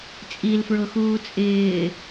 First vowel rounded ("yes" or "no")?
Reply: no